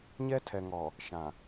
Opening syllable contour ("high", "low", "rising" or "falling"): high